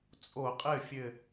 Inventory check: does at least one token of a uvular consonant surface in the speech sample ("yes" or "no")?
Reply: yes